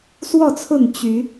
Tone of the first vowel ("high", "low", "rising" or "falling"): falling